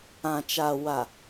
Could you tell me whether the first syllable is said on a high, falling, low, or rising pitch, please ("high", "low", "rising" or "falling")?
low